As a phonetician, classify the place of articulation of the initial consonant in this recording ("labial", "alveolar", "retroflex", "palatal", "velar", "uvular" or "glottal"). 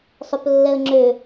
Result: alveolar